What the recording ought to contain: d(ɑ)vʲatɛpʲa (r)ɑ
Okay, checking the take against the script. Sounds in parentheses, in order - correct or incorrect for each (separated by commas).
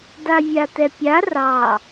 incorrect, correct